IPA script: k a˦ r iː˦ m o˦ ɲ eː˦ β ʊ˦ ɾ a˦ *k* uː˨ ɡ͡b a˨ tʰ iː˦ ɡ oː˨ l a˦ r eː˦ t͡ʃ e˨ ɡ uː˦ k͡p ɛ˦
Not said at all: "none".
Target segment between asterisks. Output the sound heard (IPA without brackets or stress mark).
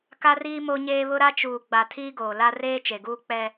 t͡ʃ